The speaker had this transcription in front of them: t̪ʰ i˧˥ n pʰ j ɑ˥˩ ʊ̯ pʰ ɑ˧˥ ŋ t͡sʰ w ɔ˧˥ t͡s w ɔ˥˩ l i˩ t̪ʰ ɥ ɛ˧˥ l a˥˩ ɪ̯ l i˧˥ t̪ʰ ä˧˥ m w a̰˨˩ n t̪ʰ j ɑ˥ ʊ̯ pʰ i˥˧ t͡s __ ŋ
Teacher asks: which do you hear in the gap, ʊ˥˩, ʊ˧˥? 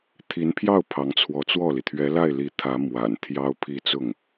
ʊ˥˩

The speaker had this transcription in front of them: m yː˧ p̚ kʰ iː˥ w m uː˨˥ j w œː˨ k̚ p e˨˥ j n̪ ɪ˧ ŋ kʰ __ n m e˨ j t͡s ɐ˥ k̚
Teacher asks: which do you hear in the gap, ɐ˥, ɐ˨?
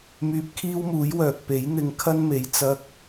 ɐ˥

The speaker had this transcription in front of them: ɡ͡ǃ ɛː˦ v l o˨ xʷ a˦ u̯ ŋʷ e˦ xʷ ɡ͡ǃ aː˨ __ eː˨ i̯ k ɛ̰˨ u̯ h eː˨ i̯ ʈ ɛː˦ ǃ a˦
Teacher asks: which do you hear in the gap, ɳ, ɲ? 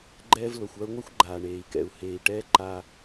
ɳ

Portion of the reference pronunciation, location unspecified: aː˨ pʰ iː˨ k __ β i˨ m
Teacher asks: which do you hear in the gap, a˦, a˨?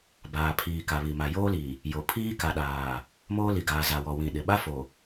a˨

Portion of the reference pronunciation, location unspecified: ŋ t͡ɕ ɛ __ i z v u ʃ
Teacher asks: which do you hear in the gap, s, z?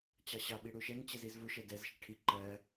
z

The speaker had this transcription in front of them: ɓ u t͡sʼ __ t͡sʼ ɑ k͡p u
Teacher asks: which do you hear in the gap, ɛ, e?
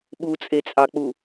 e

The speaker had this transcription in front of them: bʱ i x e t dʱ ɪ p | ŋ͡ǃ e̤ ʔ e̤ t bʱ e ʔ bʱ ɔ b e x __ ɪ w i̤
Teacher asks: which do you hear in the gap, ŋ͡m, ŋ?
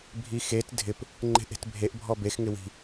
ŋ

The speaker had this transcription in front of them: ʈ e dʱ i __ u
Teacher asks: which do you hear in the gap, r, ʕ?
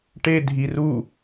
r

